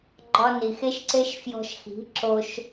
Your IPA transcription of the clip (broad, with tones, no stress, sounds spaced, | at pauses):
ɡ͡ǃ ɒ˧ n i˨ x e˦ ʃ ǀ e˦ ʃ f j ɔ̤˧ ʃ x i̤˨˦ ǁ o˦ ʃ